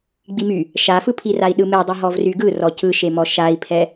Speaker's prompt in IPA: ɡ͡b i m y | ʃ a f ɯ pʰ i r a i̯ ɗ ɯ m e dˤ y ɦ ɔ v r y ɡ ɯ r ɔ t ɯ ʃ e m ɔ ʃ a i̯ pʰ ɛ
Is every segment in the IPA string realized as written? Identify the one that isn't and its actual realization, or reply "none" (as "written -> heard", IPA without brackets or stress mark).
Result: t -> c